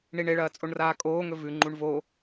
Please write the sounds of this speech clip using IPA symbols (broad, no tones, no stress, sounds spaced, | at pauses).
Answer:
ɳ i ɳ e ɭ ɐː t͡sʼ o ɳ r aː kʼ oː ŋ ɵ v ʉ ŋ͡ǃ u ɳ v o